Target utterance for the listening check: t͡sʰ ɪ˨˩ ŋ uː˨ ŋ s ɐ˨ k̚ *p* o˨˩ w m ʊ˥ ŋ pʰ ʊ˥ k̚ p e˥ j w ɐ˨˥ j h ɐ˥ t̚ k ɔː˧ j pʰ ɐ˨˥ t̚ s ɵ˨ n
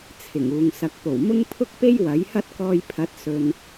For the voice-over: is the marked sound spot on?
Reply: yes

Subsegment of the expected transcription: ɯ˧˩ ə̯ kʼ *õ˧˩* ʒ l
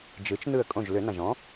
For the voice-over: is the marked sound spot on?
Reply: yes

